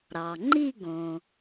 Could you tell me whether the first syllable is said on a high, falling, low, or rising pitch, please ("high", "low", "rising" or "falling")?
low